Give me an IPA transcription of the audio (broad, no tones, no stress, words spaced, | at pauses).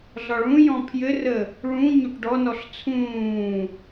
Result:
ɮɒɭũjɔ̃ pʰjɘrə | ɭũ ɲoʈɖɔnɔɬ t͡sʰũː